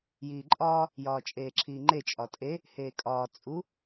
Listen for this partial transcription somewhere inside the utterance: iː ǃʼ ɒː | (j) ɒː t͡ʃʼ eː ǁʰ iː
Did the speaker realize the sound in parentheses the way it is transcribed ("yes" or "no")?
yes